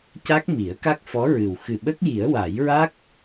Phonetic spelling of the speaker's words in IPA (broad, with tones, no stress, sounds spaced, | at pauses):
c a˦˥ k̚ m i˨˩˦ ə̯ k a˦˥ k̚ f ɔ˧˥ ɹ ɨ˨˩ w x ɨ˨˩ ɓ ə˦˥ k̚ j i˨˩˦ ə̯ w a˨˩˦ j ɹ a˦˥ k̚